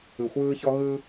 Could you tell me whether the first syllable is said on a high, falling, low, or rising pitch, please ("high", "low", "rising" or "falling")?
low